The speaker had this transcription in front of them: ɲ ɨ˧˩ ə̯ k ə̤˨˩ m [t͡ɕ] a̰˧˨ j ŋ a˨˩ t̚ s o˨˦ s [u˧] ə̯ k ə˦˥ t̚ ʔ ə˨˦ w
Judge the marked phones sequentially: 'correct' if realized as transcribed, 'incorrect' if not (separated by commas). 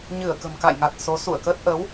incorrect, incorrect